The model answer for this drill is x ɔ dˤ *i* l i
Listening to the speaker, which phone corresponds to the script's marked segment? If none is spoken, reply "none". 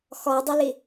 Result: ɪ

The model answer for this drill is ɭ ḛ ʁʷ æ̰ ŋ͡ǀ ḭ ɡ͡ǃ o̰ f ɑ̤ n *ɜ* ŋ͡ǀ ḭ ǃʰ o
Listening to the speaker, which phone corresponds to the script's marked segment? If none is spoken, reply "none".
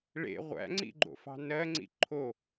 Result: ɜ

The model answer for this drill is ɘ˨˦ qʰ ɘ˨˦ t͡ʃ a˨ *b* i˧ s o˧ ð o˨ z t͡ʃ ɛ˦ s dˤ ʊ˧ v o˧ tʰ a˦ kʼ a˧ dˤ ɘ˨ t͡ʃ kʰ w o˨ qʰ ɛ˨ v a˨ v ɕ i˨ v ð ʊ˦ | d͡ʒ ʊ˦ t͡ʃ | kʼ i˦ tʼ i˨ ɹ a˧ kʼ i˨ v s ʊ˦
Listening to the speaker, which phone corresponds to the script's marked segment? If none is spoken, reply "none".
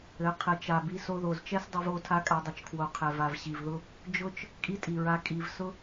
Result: b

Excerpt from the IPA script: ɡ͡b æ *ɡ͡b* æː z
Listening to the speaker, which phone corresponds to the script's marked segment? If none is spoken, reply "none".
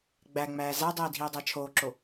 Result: ŋ͡m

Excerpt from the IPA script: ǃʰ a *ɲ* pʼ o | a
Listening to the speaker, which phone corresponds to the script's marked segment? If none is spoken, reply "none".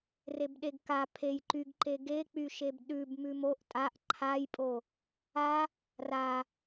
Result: j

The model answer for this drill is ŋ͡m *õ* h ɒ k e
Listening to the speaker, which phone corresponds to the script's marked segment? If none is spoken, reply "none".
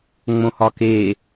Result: õ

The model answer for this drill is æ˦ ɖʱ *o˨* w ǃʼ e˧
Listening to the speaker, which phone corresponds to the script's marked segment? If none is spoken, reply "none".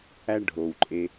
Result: o˨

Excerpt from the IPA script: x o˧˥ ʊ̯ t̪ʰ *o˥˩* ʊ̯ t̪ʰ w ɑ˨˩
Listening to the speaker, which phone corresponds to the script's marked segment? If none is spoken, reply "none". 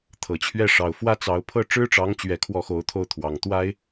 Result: o˥˩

